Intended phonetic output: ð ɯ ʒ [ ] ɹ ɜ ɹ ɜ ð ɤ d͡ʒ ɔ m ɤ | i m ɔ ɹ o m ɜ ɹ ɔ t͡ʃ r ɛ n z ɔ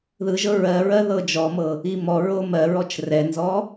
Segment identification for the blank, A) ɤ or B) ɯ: A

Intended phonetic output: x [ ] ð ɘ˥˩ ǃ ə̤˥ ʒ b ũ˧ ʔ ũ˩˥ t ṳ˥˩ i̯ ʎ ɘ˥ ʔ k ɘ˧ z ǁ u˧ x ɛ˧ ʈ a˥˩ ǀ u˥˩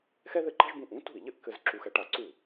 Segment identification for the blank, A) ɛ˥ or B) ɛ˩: A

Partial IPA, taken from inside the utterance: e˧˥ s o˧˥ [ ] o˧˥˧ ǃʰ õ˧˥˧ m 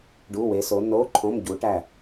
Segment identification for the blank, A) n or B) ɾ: A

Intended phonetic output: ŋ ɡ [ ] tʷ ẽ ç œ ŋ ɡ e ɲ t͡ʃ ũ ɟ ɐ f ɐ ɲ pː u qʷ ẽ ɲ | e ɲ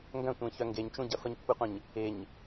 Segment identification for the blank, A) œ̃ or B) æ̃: A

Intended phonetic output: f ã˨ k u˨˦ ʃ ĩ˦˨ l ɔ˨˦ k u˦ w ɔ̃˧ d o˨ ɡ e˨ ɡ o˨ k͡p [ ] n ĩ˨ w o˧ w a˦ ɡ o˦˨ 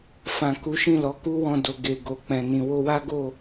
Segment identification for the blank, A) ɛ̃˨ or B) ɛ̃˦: A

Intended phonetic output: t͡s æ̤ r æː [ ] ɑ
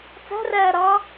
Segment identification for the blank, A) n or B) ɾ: B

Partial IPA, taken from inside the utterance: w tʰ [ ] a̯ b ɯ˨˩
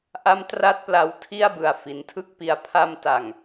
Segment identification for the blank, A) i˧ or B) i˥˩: B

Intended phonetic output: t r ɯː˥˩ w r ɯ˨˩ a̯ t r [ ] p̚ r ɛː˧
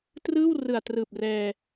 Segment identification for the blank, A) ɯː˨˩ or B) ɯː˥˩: A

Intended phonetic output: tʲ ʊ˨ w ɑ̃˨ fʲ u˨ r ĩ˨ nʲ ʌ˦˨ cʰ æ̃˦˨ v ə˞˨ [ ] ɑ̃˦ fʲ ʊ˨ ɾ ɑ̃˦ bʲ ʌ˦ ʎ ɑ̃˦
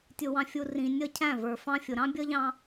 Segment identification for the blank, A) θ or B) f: B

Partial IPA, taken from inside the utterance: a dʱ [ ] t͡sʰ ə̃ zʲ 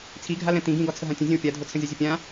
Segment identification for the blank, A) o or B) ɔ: A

